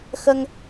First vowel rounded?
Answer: no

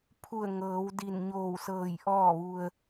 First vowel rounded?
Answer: yes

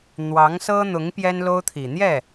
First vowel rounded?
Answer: no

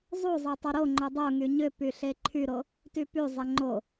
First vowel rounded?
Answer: yes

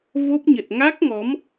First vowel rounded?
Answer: yes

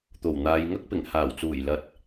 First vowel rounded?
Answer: yes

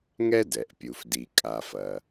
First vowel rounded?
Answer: no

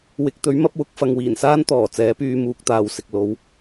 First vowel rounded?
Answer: no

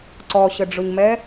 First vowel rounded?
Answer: yes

